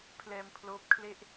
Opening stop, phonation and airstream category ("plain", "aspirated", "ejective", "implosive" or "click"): aspirated